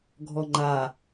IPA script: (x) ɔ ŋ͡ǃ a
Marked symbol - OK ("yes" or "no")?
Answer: no